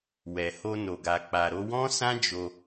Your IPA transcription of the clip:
w ɛ˨ h o˧ n o˨ ɡ a˨ k͡p a˨ ɾ o˧ w ɔ̃˦ s ã˦ d͡ʒ o˧

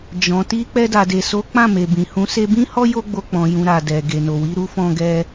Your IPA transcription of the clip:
d͡ʒ ɔ̃˨ t i˧ k͡p ɛ˧ d a˨ d e˨ s o˨˦ k͡p ã˦˨ m e˨ b ĩ˨ h ũ˨˦ s e˧ b ĩ˦ h ɔ˦ j o˦ ɡ͡b o˧ k͡p ɔ̃˨ j ũ˨ ɾ a˨ d ɛ˨ ɡ e˨ n o˨ w i˨˦ ɾ u˦ f ɔ̃˧ ɡ ɛ˧

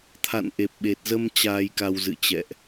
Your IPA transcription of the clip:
t̪ʰ a̰˧˨ n ʔ e˨˩ p̚ ɓ e˨˩ t̚ z ə˧ m t͡ɕ aː˧ j k a˧ w z ɨ̰˧˨ t͡ɕ ɛ̰˧˨ ʔ

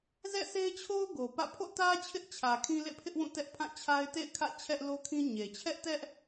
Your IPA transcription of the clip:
z ɛ̰˦˨ s e˦ ɪ̯ t͡ɕʰ o˦ ʊ̯ ɡ o˨ p ä̰˦˨ pʰ o̰˦˨ t ä˦ t͡ɕʰ ɪ˦ ʔ t͡ɕʰ ä˨ kʰ ĩ˦ l ḛ˦˨ pʰ ɪ˦ ʔ w ũ˦˨ t ɛ˦ ʔ pʰ ã˦˨ t͡ɕʰ a˦ ɪ̯ t ḛ˦˨ ɪ̯ kʰ ä̰˦˨ t͡ɕʰ ɛ˦ ʔ l o˦ kʰ ĩ˦ ɲ e˨ t͡ɕʰ ɛ˦ ʔ t ɛ˦ ʔ

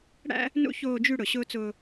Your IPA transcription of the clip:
ɽ æ̰˦ | n ṵ˦ ç oː˨ d͡ʒ y˨ ɽ ʊ˨ ɕ ʊː˦ t͡s ʊː˦

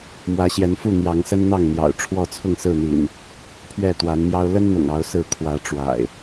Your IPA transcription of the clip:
m w ä˨˦ ɕ j ɛ˨˦ n f u˥˨ n̪ j ɑ˨˦ ŋ s ə˦ n n̪ ɑ˥˨ ŋ n̪ j ɑ̰˨˩ ʊ̯ ʈ͡ʂʰ w ɔ˥˨ t͡sʰ ʊ˥˨ ŋ s ɹ̩˥˨ n̪ ḭ˨˩ n | pʰ ɥ ɛ˥˨ t̪ w a˨˦ n m j ɑ˦ ʊ̯ l ə˦ n n̪ ʊ̰˨˩ ŋ ɑ˨˦ ʊ̯ s ɹ̩˨˦ kʰ w ä˨˦ ʈ͡ʂ w a̰˨˩ ɪ̯

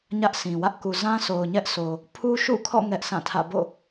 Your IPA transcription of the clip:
ɲ ä˦ ʔ s ĩ˨ w ä˦ ʔ k u˨ z ã˦ s o˨ ʊ̯ ɲ ɛ˦ ʔ sʰ o˨ | pʰ u˦ ʃ ṵ˦˨ kʰ ɔ̰˦˨ ŋ ɛ˦ ʔ sʰ ã˦˨ tʰ ä̰˦˨ b o̰˦˨

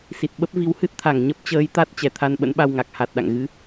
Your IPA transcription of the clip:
s i˨˩ t̚ ɓ ə˦˥ p̚ v i˨˦ w h ɨ˦˥ t̚ t̪ʰ a˧˩ ŋ ɲ ə˦˥ p̚ t͡ɕ əː˨˦ j t̪ a˦˥ t̚ t͡ɕ ɛ˧˩ t̪ʰ a˧ n ɓ ə̰˧˥ n ɓ a˧ w ŋ a˨˩ k̚ h a˨˩ t̚ ɗ a̰˧˨ ŋ ɣ ɨ˨˦

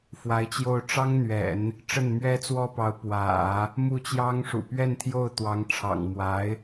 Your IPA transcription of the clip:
f w a˧˥ ɪ̯ t͡ɕ j o˥˩ ʊ̯ ʈ͡ʂ ɑ˥ ŋ n̪ ɥ ɛ̰˨˩˦ n | ʈ͡ʂ ə˥˩ n m ɥ ɛ˥ t͡s w ɔ˥ p ɑ˧˥ ʊ̯ p w ä̰˨˩˦ | m u˥˩ t͡ɕ j ɑ˥ ŋ ʂ ṵ˨˩ p ɥ ɛ˥˧ n t̪ʰ j o˥˩ ʊ̯ t̪ w ɑ˧˥ ŋ ʈ͡ʂʰ ɑ̰˨˩ ŋ m w a˧˥ ɪ̯

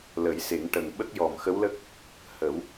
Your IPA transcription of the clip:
l ə˨˩˦ j s e˨˩˦ ŋ ʈ ə˨˩ ŋ ɓ ə˦˥ k̚ j ɔ˨˩ m x ə˧˥ w l ə˦˥ k̚ | h ə˨˩˦ w

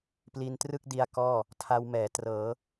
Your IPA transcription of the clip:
p l i˧ n t r ɯ˥˩ k̚ d i˧ a̯ k ɔː˥˩ | tʰ a˧ w m ɛː˩˦ t r ɤː˩˦

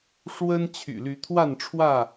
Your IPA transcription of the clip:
ʂ w ə˦ n t͡ɕʰ y̰˨˩ l y˨˦ t̪ʰ w a˥˨ n ʈ͡ʂʰ w ä˥˨

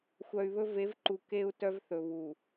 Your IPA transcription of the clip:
xʷ œ˨ y̯ β ɵ˦ v e˨˦ v ǃ u˨ k e˦ u̯ t œ˦ v θ ɵ˨ β u˨

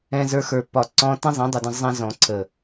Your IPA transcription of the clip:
ɛ̃˧ z ə˞˧ x ə˞˨ p ɒ˨ ǀ ɔ̃˧ t ẽ˦ zˤ ẽ˨˦ dˤ ə˨ d ə̃˧ zˤ ɛ̃˧ z ɔ̃˨ ǀʰ ə˨

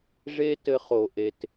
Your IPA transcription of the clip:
ʐ e˦ t ɘ˧ χ o˨ ʔ e˨ t

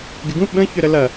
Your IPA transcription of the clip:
ɡ ɪ ɡ ũ ɓ ə̃ ç ʏ ɾ ə l ɐ

